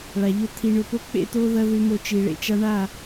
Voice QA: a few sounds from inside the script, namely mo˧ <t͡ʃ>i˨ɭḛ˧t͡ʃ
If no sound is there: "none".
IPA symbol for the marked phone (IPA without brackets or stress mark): t͡ʃ